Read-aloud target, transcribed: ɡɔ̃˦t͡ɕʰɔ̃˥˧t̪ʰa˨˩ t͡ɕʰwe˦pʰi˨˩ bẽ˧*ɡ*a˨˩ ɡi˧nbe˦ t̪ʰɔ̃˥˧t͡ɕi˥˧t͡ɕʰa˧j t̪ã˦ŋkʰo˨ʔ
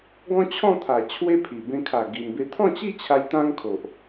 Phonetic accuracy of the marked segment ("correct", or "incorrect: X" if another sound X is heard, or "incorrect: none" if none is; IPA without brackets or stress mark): incorrect: kʰ